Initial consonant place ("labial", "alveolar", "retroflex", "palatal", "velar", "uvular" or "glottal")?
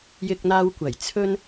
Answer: palatal